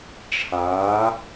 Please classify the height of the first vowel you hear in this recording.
low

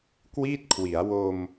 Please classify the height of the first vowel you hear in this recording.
high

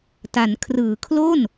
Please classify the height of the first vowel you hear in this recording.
low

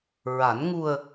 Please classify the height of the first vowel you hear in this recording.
low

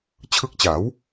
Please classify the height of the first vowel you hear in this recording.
high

